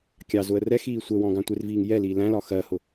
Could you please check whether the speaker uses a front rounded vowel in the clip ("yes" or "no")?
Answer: no